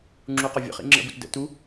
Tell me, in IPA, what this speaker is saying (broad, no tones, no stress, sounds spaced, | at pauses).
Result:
ŋ͡ǁ u q ɒ vʲ ə̰ χ ḭ ŋ͡ǁ ə̰ b u t d ə̰ t u